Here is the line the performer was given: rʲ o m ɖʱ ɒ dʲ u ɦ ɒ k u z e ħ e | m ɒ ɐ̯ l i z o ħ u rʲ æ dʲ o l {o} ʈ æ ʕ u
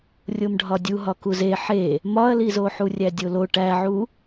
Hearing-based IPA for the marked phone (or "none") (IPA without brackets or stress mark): o